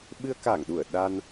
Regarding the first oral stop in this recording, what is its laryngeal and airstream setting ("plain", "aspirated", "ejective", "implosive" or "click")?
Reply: implosive